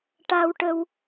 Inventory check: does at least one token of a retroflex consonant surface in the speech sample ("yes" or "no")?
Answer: yes